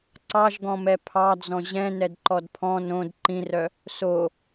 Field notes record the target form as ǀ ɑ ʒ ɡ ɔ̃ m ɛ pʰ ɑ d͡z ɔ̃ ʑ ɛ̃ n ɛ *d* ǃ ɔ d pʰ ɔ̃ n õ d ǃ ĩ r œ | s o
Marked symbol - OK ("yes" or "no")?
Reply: yes